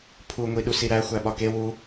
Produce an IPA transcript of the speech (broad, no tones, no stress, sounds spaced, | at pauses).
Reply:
pʰ u ŋʷ i ɗ u s i ɾ æ xʷ æ ɓ ɒ k e w u